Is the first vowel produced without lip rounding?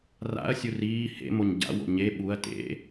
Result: yes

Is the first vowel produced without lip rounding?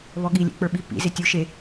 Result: no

